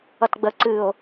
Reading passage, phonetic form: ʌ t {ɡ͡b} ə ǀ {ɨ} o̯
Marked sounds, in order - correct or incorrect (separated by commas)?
correct, correct